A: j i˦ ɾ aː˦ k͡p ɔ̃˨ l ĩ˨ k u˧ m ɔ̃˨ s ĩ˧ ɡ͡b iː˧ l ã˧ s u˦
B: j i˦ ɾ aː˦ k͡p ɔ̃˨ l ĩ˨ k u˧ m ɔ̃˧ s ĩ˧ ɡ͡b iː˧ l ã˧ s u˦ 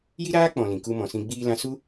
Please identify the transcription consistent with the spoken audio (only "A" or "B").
A